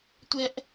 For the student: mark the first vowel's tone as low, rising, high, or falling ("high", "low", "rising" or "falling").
high